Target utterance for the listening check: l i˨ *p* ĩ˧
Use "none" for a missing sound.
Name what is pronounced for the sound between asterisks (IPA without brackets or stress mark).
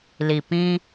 p